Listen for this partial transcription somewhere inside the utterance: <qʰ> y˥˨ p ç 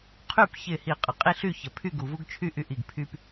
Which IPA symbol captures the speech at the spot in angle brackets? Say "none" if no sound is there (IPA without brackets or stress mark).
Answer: qʰ